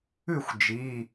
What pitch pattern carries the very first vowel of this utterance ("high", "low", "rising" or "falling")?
falling